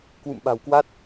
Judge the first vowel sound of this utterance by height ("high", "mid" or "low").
high